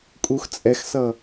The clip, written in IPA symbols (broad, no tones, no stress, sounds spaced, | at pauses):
kʼ u x t͡sʼ ɛ x s ʌ